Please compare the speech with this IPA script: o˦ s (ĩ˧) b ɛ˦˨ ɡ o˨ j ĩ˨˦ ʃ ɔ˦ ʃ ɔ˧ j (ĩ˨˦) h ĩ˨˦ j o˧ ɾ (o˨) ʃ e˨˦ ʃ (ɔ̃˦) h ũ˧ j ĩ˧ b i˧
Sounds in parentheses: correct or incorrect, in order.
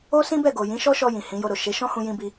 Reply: incorrect: ĩ˦, incorrect: ĩ˨, correct, correct

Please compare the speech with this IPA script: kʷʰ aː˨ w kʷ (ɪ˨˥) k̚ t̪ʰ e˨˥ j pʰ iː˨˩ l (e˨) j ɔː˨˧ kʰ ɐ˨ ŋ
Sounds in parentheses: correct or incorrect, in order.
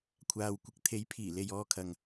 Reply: correct, correct

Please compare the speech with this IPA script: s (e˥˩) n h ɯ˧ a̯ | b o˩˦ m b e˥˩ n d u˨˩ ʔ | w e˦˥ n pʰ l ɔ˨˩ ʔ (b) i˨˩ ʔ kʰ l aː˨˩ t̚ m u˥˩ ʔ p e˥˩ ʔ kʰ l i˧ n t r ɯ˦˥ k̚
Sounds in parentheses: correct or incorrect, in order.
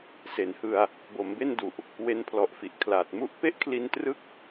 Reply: incorrect: e˩˦, incorrect: f

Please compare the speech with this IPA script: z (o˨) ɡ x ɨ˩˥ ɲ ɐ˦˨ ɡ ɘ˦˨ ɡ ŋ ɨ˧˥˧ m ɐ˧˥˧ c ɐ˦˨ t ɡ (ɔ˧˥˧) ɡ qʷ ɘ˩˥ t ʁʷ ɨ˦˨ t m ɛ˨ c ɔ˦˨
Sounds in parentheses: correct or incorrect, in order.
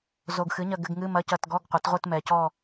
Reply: correct, correct

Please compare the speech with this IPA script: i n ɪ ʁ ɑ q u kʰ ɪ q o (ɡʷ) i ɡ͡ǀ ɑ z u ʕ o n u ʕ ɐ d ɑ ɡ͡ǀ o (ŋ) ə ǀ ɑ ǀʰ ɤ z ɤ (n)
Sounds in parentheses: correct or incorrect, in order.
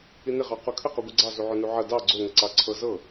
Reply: correct, correct, incorrect: none

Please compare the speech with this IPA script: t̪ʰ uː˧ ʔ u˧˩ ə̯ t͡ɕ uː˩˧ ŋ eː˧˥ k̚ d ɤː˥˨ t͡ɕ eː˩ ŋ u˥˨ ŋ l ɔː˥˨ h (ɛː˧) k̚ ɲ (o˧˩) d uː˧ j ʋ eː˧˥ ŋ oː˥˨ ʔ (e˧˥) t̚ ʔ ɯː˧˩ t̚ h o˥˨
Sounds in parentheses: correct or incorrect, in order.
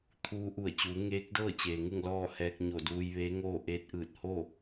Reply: correct, correct, incorrect: eː˧˥

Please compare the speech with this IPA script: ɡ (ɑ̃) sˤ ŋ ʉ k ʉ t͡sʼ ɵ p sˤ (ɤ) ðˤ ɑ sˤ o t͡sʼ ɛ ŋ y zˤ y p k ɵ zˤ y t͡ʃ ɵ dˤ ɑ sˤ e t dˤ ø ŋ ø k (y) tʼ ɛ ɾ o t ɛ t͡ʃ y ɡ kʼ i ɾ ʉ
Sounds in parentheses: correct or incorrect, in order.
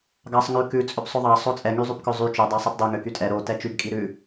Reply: incorrect: ɑ, incorrect: ɵ, correct

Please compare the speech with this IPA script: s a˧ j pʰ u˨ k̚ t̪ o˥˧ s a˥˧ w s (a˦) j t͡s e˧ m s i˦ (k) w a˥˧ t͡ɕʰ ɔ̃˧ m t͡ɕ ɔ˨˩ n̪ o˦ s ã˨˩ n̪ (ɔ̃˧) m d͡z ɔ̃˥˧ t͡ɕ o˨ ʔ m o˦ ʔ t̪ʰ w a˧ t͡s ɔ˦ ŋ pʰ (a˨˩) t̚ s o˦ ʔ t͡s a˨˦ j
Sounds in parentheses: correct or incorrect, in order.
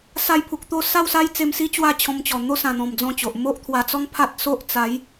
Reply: correct, incorrect: t͡ɕ, incorrect: ɔ̃˨˩, incorrect: a˦

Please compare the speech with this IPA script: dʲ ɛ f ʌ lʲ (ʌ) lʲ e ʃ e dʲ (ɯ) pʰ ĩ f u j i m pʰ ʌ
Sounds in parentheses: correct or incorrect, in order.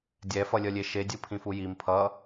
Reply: correct, correct

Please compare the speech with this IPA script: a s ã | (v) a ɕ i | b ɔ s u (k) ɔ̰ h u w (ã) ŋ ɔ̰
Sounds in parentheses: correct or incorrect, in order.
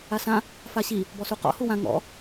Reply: incorrect: f, incorrect: q, correct

